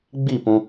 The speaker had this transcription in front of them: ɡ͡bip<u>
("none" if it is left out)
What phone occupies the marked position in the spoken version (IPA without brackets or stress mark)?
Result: ũ